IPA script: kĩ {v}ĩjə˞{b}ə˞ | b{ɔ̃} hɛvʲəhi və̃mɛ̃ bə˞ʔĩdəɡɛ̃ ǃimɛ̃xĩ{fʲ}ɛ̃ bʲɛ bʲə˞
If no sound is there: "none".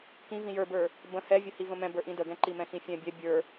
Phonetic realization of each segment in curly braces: v, b, ə̃, fʲ

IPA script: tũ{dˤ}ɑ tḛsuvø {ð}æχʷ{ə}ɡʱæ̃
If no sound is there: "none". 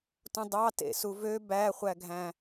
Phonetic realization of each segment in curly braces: dˤ, b, æ

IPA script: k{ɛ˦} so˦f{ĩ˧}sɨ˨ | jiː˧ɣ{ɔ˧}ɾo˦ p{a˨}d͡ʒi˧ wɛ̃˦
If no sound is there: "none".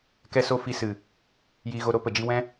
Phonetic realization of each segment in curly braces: ɛ˦, i˧, o˧, ə˨

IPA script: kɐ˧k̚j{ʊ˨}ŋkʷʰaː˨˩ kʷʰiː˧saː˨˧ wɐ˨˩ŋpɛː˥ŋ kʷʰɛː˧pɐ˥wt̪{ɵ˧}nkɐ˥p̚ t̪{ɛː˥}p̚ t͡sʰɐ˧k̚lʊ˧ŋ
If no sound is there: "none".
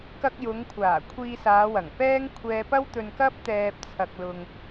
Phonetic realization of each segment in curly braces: ʊ˨˧, ɵ˧, ɛː˧

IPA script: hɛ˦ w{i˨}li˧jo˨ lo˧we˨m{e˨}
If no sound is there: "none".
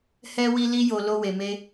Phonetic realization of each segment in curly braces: i˧, e˧

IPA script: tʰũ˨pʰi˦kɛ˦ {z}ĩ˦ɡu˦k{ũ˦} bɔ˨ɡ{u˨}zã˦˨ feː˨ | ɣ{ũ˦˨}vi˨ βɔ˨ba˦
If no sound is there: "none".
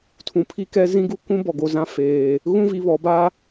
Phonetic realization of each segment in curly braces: z, ũ˦, o˨, ũ˦

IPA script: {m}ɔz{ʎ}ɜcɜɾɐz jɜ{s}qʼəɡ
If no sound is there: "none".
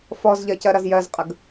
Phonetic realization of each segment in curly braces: f, ʎ, z

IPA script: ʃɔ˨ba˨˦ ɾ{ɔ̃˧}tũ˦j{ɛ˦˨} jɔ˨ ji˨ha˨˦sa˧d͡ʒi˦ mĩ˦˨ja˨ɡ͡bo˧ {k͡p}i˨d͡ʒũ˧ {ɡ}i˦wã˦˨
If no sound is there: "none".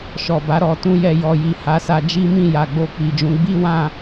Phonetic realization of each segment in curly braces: ɔ˧, ɛ˦˨, k͡p, ɡ͡b

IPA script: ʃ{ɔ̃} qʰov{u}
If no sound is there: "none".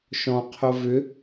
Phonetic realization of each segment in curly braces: ɔ̃, ʏ

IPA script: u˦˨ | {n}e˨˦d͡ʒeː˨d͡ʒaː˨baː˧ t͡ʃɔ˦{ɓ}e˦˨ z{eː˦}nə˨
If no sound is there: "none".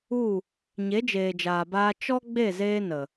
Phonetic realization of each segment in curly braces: ɲ, ɡ͡b, eː˦

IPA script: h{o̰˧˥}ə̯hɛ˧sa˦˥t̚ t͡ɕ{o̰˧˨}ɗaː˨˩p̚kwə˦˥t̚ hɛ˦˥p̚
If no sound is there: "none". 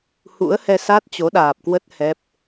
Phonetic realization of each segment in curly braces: ṵ˧˥, o˨˦

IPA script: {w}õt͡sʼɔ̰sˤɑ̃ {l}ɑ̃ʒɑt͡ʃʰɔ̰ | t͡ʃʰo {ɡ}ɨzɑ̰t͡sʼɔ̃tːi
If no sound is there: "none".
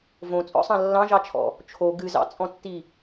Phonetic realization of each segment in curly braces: v, lː, ɡ

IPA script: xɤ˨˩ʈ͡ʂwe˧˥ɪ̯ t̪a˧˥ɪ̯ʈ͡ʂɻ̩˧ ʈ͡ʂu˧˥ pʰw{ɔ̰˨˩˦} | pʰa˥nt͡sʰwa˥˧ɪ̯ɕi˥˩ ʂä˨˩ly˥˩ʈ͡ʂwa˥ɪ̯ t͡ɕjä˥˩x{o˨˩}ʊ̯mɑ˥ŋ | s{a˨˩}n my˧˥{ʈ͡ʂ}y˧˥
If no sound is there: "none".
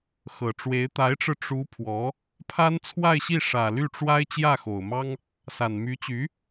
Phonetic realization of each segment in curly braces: ɔ˧˥, o˨˩, a˨˩, t͡ɕ

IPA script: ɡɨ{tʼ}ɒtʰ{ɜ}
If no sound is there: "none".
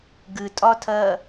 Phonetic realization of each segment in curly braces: tʼ, ɜ

